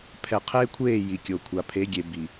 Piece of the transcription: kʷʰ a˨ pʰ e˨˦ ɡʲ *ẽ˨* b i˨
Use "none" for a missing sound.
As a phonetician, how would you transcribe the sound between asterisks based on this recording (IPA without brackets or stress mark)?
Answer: e˨